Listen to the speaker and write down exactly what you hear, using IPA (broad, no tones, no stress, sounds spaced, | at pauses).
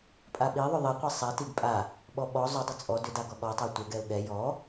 pʼ a ɓ i ðˤ ʏ ðˤ i qʷ ɛ sˤ ɛ t i ɡ pʼ a | ɓ ɔ ɓ ɔ zˤ ʏ dˤ ʏ t͡sʼ ɔ d ʏ d a ɡ ɔ ɠ ɔ tˤ a tʷ ɛ ɡ ɛ ʊ̯ ɠ ɛ j ɔ